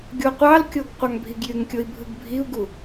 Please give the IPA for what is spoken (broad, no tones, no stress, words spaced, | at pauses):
ɡʲoqʷɑlkʲoɡ qʷɑŋbʱiɡjyŋkʲoi̯ bʱɯɡbʱiu̯ɡu